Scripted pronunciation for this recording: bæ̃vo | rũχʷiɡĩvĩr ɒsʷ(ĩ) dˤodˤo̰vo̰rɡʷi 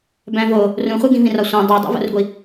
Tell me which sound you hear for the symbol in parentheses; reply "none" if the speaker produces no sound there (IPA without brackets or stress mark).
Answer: ẽ